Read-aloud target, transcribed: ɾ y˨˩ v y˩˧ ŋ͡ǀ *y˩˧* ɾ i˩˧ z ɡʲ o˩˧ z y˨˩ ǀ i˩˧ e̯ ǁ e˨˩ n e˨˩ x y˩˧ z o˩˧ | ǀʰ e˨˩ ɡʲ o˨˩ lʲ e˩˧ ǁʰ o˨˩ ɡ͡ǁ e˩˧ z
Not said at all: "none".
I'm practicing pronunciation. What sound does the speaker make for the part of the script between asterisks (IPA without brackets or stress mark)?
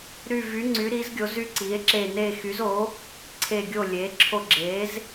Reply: y˩˧